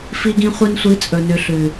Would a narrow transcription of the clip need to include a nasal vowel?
yes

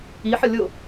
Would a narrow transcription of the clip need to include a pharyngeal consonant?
yes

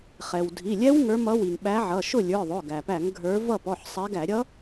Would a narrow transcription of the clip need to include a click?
no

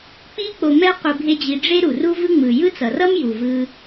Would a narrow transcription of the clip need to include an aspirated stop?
no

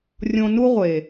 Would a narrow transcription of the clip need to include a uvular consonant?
yes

